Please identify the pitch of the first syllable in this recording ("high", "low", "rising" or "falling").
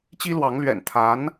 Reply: high